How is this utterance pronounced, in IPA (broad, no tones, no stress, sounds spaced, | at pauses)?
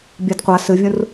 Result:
bʲ a d qʷ a s ɨ vʲ ũ r